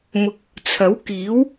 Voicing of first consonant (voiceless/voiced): voiced